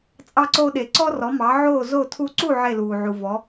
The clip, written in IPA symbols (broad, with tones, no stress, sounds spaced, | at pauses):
t͡sʼ ɑ˧ ǀ oː˧ ɗ e˩ ǀ ɔ˥ r ɔ˩˥ m ɑ˩˥ ʕ oː˥˩ z o˥˩ tʰ u˧ ǀ u˥˩ ʕ e˥˩ l uː˩ ʕ u˩ v ɔ˩˥